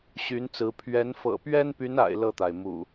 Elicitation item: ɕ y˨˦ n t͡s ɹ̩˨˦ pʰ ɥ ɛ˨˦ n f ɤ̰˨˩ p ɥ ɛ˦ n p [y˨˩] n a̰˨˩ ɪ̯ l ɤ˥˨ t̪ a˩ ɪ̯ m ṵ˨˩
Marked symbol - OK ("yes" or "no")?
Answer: no